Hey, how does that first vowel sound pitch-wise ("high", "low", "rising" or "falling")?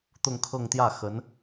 falling